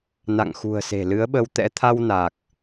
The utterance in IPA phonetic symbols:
n a̰˧˨ ŋ x ṳ˨˩ ə̯ s e̤˨˩ l ɨ˨˦ ə̯ ɓ ə˧ w t̪ ɛ̰˧˥ t̪ʰ a˧ w n a˨˩ k̚

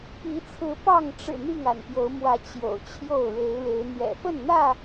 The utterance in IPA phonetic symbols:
p i˨˦ t͡sʰ ɹ̩˨˦ p ɑ˥˨ ŋ ʈ͡ʂ ɻ̩˨˩ n̪ i˥˨ ŋ a̰˨˩ n p j o˨˦ ʊ̯ m w ä˨˦ t͡ɕ j o̰˨˩ ʊ̯ t͡ɕʰ j o˥˨ ʊ̯ ɻ e˨˦ ɪ̯ ɻ e˨˦ ɪ̯ n̪ j ɛ̰˨˩ f ə˥˨ n n̪ ä˥˨

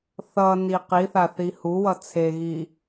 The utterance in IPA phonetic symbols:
θ ʌ n i q i θ a θ i h u w ʌ t͡sʰ e ɣ i

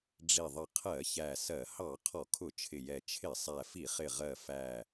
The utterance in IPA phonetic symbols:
ɖ͡ʐ i˨˩ ðˤ ə˨˩ qʰ ɜ˧˩˧ ç æ˨˩ s ɜ˧˩˧ h ɑ˧˩˧ qʰ ɔ˧˩˧ kʰ ʊ˧˩˧ t͡ʃʰ ɪ˨˩ j ɛ˨˩ t͡ʃʰ ɪ˧˩˧ sˤ æ˨˩ f i˧˩˧ χ ɪ˨˩ ʁ ɜ˨˩ f æ˨˩

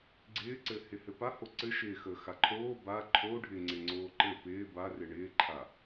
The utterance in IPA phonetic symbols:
ɡ͡ǀ ɪː ǀ ɘ h ɪ h ɘ p a h o ǀ ɘ ʃ ɪː x əː x a ǃʰ oː b a ǃʰ o ɖʱ ɪ ŋ͡ǀ ɪ ŋ͡ǀ oː ǃ ɘ p ɪː b a r ɪ ɳ ɪː ǃʰ a

